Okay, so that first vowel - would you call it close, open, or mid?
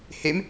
mid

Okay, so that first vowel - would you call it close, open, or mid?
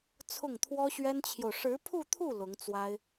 close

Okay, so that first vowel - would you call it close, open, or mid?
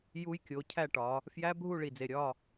close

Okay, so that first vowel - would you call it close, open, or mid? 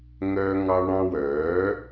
mid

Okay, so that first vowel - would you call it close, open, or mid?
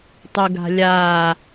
close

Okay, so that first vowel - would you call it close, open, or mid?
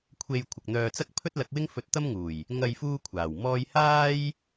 mid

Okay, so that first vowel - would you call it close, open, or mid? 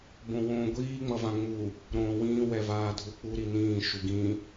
mid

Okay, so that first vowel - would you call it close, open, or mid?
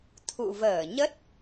close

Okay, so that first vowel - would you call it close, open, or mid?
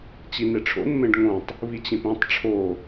close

